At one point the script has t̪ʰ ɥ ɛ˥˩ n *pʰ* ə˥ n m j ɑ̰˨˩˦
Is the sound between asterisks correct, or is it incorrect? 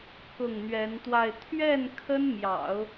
incorrect